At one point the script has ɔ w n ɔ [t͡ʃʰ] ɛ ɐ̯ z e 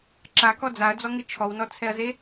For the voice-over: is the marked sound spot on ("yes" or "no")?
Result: no